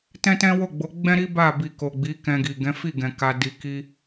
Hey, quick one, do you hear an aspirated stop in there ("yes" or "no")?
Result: no